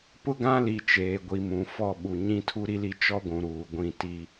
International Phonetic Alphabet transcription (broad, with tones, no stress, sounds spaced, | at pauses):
p ʊ˦ ɡ ã˦ l i˨ t͡ʃ eː˨ ɡʷ i˨ m ũ˨ f ɔ˦˨ ɓ u˨ ɲ ĩ˦ tʰ u˦ ɾ i˦ l i˦ t͡ʃ ɔ˦ ɡʷ ũ˨ ɾ uː˨ ɡʷ ĩ˦˨ t i˦